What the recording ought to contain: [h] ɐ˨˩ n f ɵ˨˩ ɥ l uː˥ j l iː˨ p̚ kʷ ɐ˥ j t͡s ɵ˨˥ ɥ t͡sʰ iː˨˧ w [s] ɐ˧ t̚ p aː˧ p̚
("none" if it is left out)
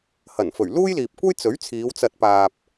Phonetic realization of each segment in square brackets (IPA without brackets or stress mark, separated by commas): h, t͡s